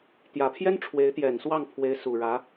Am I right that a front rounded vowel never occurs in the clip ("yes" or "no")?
yes